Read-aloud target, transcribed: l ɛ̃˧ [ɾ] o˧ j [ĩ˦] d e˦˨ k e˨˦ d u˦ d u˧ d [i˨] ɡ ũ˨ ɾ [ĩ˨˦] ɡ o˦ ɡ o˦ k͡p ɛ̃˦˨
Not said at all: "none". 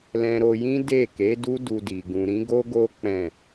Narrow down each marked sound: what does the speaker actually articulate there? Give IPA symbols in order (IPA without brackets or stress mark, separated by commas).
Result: ɾ, ĩ˦, i˨, ĩ˨˦